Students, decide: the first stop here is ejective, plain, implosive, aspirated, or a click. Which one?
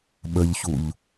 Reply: implosive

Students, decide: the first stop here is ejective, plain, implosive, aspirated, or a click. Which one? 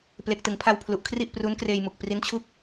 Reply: plain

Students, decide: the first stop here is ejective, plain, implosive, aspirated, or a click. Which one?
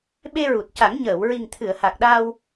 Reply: implosive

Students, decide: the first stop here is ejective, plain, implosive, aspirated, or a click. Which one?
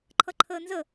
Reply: click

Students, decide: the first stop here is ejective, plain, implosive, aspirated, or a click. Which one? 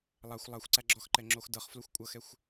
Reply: click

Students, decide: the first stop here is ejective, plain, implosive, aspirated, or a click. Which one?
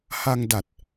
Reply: plain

